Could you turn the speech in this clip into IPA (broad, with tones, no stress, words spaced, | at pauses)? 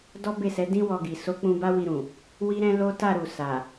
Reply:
dɔ˦be˦˨sɛ˨˦ dĩ˦wɔ˧ɡi˨ so˨˦ k͡pũ˧ba˦wi˧ɾũ˨ | wi˦ɾɛ̃˦lo˦ ta˦˨ɾu˨sa˨